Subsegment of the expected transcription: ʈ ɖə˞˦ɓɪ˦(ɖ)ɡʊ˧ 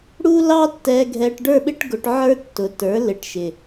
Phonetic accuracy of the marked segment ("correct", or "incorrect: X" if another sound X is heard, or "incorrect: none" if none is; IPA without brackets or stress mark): incorrect: ʈ